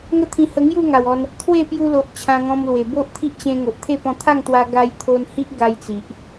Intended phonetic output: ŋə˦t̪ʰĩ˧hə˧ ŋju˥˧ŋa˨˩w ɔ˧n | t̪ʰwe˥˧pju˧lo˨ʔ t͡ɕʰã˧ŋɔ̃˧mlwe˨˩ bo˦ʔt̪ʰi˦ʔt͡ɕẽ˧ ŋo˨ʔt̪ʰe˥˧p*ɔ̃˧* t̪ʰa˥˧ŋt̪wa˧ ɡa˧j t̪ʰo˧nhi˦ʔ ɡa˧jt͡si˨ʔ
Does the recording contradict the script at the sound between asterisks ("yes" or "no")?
no